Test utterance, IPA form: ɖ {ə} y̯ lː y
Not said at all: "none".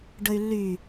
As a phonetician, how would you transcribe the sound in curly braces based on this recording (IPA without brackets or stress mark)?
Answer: ə